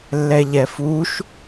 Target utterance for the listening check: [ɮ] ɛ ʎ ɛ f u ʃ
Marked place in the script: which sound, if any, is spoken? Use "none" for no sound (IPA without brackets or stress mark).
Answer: lː